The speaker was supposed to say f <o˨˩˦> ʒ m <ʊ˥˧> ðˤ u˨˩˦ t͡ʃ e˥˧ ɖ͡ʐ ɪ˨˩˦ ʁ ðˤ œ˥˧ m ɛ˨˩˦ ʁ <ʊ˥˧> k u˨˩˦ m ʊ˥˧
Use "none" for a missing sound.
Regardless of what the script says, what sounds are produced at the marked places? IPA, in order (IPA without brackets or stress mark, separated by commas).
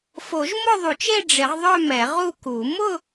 o˨˩˦, ʊ˥˧, u˥˧